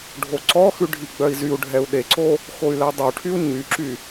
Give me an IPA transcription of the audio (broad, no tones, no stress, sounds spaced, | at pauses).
ɖʱ o ǀ ɔ x ʉ ɖʱ i ɡ͡b œ i̯ z y u̯ ɖʱ ɛ u̯ ɗ e ǀ o | x o y̯ l ɛ dˤ o ʈʰ y u̯ ɲ y ǁ y